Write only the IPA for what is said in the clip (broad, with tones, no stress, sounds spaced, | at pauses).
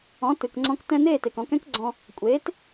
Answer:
ɔ̃˩˥ t ɨ˩ k ŋ͡ǀ ɔ̃˧ k t ɛ̃˧ n eː˥˩ t e˩ k ɔ̃˩˥ k ɛ̃˥ k ɡ͡ǀ ɔ̃˧ | kʷʼ eː˩˥ t